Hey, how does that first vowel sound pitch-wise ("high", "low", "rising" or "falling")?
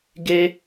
high